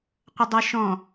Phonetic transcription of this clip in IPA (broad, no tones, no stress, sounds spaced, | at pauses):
qʷ ə dˤ ə ʃ ɔ̃